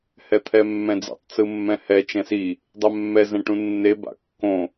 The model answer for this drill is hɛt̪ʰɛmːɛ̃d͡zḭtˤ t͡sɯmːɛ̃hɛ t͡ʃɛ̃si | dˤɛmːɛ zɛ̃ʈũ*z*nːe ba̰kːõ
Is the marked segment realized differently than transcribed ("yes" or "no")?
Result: yes